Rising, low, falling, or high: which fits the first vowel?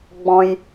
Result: low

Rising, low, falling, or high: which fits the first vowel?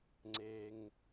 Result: low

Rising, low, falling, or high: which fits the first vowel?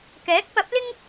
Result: rising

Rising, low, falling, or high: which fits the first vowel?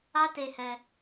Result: high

